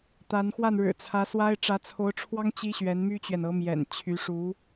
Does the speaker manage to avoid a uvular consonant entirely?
yes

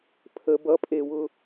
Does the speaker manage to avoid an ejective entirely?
no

